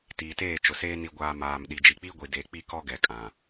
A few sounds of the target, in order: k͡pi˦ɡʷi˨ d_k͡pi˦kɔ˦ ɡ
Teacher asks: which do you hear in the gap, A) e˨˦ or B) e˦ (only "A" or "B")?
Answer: A